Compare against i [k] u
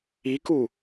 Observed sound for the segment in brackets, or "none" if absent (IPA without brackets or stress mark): k